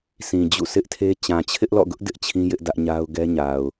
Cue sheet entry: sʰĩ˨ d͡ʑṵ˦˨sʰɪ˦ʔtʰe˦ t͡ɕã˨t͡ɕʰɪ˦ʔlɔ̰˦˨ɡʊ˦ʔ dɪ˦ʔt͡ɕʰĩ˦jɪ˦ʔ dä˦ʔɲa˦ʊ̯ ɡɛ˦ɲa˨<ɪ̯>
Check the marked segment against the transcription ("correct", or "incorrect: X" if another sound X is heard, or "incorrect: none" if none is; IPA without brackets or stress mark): incorrect: ʊ̯